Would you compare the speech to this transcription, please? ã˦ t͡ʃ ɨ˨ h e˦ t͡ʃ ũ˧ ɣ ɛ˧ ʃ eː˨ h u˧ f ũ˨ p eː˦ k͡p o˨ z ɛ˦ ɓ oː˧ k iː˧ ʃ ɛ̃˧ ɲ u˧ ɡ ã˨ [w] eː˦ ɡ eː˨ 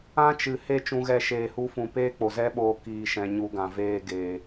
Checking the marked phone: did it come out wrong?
yes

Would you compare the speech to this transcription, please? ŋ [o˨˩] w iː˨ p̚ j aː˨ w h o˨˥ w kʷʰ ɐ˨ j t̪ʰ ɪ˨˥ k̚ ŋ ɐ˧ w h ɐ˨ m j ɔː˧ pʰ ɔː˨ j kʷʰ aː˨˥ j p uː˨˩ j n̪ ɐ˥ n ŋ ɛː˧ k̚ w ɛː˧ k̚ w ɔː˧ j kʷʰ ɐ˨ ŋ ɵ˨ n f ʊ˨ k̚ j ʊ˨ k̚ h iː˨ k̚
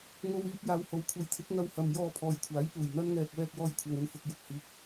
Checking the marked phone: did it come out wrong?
yes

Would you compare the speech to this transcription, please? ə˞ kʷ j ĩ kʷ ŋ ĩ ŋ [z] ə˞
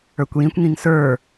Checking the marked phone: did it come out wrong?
yes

